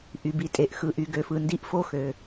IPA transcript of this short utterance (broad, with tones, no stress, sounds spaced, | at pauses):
ʔ y˩ b i˩ tʼ e˩ ʔ x ɯ˩ ʔ y˩ ɡ ø˩ f ɯ˩ n d i˧˩ ʔ f o˧˩ x ø˩